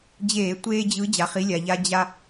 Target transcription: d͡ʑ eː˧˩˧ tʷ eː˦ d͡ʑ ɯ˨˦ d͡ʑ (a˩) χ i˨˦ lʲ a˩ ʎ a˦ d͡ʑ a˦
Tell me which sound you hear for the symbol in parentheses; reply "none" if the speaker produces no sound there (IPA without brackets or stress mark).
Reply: a˩